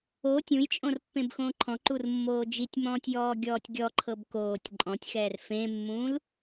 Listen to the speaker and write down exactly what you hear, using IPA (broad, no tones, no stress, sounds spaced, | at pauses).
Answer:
o tʲ ũ j t͡ʃʼ õ r pː ẽ b x õː ǃʰ ɔ̃ ǃ u r mː oː d͡ʒ i tʲ m ɔ̃ː tʲ j ɔː ɡʲ ɔː tʲ ɡʲ ɔ ǃʰ ɤ b k oː tʲ ǃʼ ɔ̃ tʲ x ɛː r f ẽ mː ũː l